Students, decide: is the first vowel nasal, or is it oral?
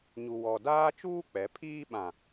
oral